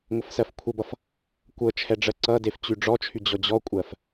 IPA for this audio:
ŋʷ ə f s ɜ f kʷʰ ə b ʌ f | kʷ ɤ t͡ʃʰ ɛ ɖ͡ʐ ɜ ǀ ʌ d e f t͡ɕ y ɖ͡ʐ ɔ t͡ʃʰ y d͡ʑ ɔ d͡ʑ ɔ kʷʼ ɜ f

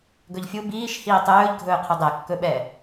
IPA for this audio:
ɡ ɵ ʎ fʲ u b iː ʃ h iː tˤ ɵː ʎ ɡʱ ɵː qʰ ɵ dˤ ɛ kː ɵ ɓ ɛː

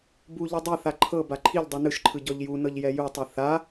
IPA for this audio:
b u ʎ ɯ dˤ e θ a ǃʰ ɤ b a ǃʰ i ʎ dˤ i n ɯ ʃ ǃʰ ɯ ɟ ɔ ʎ j u n ɤ ʎ j ɛ j u tˤ ɯ θ a

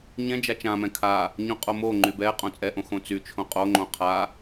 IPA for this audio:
ɲ ɛ̃ d͡ʒ a t͡ʃ ã m ɛ̃ kʰ a | ɲ õ qʼ o m o ŋ͡ǃ y b ɛ qʼ õ t͡sʼ ɛ ʔ õ x õ t͡s y t͡ʃʰ õ qʼ o ŋ͡ǃ õ qʰ a

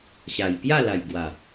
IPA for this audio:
ɕ a˨˩ j p j a˥˧ l a˨˩ j ɡ w a˨˩

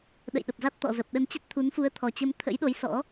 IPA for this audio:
ɗ ə̰˧˨ j ɗ ə˨˩ p̚ z a˦˥ t̚ t̪ ɔ̰˧˨ z ə˨˩ p̚ ɗ ə˧ n t͡ɕ ə˦˥ t̚ t̪ʰ u˨˦ n f u˨˦ ə̯ t̪ʰ ɔ˨˩ t͡ɕ ə˧ m t̪ʰ ə̰˧˥ j ɗ o˨˦ j s ɔ̰˧˥

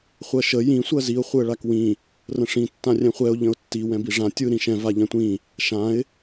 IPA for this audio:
χʷ ɜ ʃ ə j ĩ sʷ ɜ z i ʊ̯ χʷ ɯ ə̯ ɭ a k w ĩ | r ə̃ ʂ ĩ tː ã rʲ ɛ̃ χʷ ɛ ʊ̯ ʎ ə̃ ʊ̯ tː i w ɛ̃ b i ʐ ã tʲ ɯ ɾ ĩ ʃ ɛ̃ v a ʎ ɛ̃ tʷ ĩ | ʃ ã ɪ̯

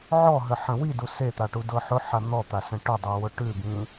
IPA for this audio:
ʕ ɔ ɦ ə ħ ə̃ w i d u s e t̪ a ʈ u d ɤ ħ ʊ ħ a n̪ ɔ t̪ a s ə̃ ʈ ʊ dˤ ɯ w ʊ ʈ ʉ b ĩ

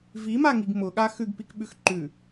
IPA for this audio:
v i m a ŋ i ɡ m ʊ ɠ a x ʉ ɡ p i k ɓ ʉ x ǃ ʉ

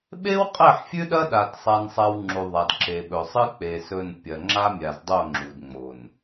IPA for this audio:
ɓ e˦ w qʼ e˦˨ ħ fʲ ʉ˦ ɗ ɐ˦ ɗ a˨ d sˤ a˦ n sˤ a˦ w ŋ͡ǁ u˨ ðˤ a˨ d ǁ e˨ ɓ ɵ˨ sˤ ɨ˦ k͡p e˨ s ɵ˦˨ n pʲ ɐ˨ ŋ͡ǁ a˦ mʲ a˨ z dˤ o˦˨ ŋ͡ǁ u˨ d ŋ͡m o˨ n

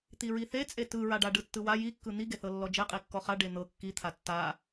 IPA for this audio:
t̪ i ɹ i θ e t͡sʼ e t ɯ ɹ a ɖ a ɖ ɯ tː ɯ w a j i kː ɯ n̪ i ɡ e θ ɤ lː ɔ d͡ʒ e qʼ i kː ɔ χ a ɖ e n̪ ɤ kː i t̪ʰ a tː a

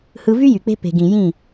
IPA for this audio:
h ɯ˧ v y˦ j y˨ k͡p e̤˦ p e̤˨ ɡ ĩ˨ j ĩ˦˨

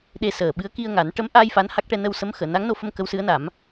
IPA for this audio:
ɗ e˧ s əː˨˩ ɓ ɨ˧˥ ə̯ k i˧ ə̯ ŋ a˨˩˦ n ʈ ə˧˥ m ʔ a˧ j f a˧˥ n h a˦˥ k̚ ʈ ɛ˧ n ə˧ w s ə˧˥ m x əː˨˩˨ n a˧˥ ŋ n o˧ f ə˧ m k ə˧˥ w s ɨ˧˥ ə̯ n a˨˩˦ m

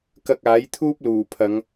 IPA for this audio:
k ɐ˧ k̚ aː˨˥ j t̪ʰ uː˥ p̚ l uː˨˩ pʰ ɐ˨˧ ŋ

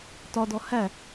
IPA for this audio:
t ɒ d ɔ h æ

